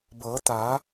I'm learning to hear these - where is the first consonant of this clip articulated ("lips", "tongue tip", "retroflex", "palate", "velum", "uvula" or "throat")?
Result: lips